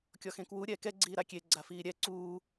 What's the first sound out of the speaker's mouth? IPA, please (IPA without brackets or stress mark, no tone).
kʲ